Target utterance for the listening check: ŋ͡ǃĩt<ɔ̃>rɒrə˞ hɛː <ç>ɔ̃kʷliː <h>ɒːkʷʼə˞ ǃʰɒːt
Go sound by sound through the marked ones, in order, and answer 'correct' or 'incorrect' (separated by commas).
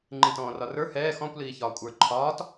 incorrect, incorrect, incorrect